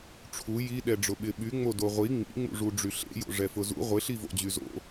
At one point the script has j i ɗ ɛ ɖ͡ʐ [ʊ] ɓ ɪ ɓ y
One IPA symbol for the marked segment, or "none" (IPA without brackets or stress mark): ʊ